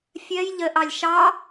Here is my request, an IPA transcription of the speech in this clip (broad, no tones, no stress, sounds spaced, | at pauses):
fʲ ɜ j ʎ ə ʔ ɑ lʲ ʃ ɑ